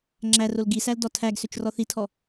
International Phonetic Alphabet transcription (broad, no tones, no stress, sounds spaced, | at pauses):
ŋ͡ǁ æ r o l ɡ i s æ l d ɔ tʰ æ ɡ s ø t͡ʃ r ɔ θ i tʰ ɔ